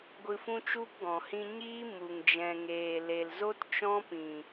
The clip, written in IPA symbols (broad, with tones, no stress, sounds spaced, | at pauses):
ɡʷ ɨ˧ f ũ˦ t͡ʃ u˦ p ɡ ɔ̃˨ h ĩ˧ ɲ iː˦ m u˨ ŋ d͡ʒ ɛ̃˨ ŋ eː˨ l e˨ l z o˦ t t͡ʃ ɔ̃˦ p ĩ˨